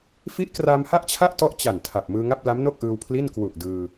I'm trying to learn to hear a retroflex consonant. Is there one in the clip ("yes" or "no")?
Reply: no